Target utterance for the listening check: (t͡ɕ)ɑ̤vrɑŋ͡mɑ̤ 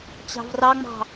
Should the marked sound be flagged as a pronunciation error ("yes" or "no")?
no